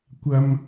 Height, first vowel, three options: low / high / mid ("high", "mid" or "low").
low